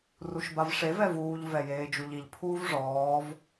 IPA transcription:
ruʃbavʂev ɛvuːʎ vɛjeːd͡ʒuʎiʎ pʰuːvʐɔːv

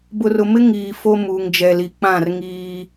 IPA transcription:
bʊ˨rʊ˨mɪ˦ ŋiː˨ fo˦muː˨ŋd͡ʒɛ˨li˨ k͡pã˦˨rŋiː˦

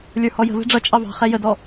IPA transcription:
lʲə˞hɔjə̤vɛ̤ ɖ͡ʐʌ t͡ʃʼɑvɑ̤χɛ jədɔ

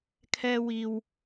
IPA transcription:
kʰɛː˥wiː˧w

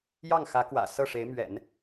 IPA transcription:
jɑ˥˩ŋxä˧˥kwä̰˨˩ sɤ˥˩ʂe˧˥ɪ̯ mɥɛ̰˨˩˦n

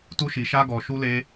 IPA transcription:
tu˦ʃi˧ʃa˦ɡɔ˧ ʃu˦le˦

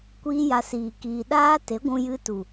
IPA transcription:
kʷiː˦ja˧siː˨ kiː˨ɗaː˦ te˨˦ɡʷũ˧jɨ˧tu˨

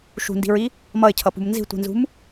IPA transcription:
ʃṳndi̤ɹi | mʌɪ̯cʰʌpṳm nzi̤tʷi̤nzṳm

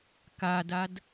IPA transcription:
kadad

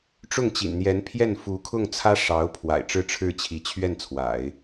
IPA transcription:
ʈ͡ʂʊ˥˩ŋt͡ɕḭ˨˩n n̪jɛ˧˥npʰjɛ˥˩n fu˧˥kʰʊ˥˩ŋt͡sʰä˥ ʂɑ˧˥ʊ̯ pʰwa̰˨˩ɪ̯ʈ͡ʂɻ̩˥˧ʈ͡ʂʰɻ̩˥˩ t͡ɕʰi˧˥t͡ɕʰɥɛ˥˩nt͡sʰwa̰˨˩˦ɪ̯

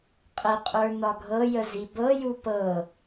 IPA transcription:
qʼəqʼə˞ nɒɡʱɤjə zibɤju pɤ

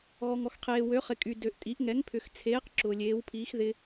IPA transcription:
ɣɔ˨ŋɔ˨xqʰeː˨ wø˨˦χɪ˨kʼy˨ dø˨ʔtʼi˨˦ʔ ŋɛ˨˦ŋpʰʏ˨xt͡sʰeː˨˦q ǁʊː˨lʲeː˨˦wpʰiː˨˦x ðɪ˨

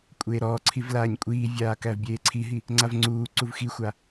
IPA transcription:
kʷʼeːɾɔːǀʰiv laːɲkʷʼiːvʲaː kævbʲeːǀʰiɦi | ŋ͡ǀavŋ͡ǀuːǀuv xixʷa

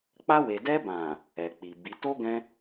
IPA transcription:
k͡pa˧we˨dɛ˧bã˨ | ɛ˨k͡pi˨bi˨˦ to˦ɡɛ̃˧

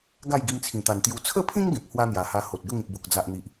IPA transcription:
ɡa˥˧j ɡi˧mt͡sʰĩ˨˩t̪a˨˩nt̪ju˧ t͡sʰə˥˧pʰĩ˦ŋ ɡẽ˨p̚hwa˦n̪ja˨˩ha˧ ho˨t̚ɡə˥˧ŋĩ˨p̚bo˨k̚ d͡za˨ʔn̪i˨ʔ

